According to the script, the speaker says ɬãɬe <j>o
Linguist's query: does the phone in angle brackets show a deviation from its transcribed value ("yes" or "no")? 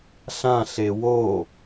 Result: yes